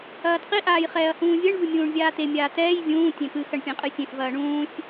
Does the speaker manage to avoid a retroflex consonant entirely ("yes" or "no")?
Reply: no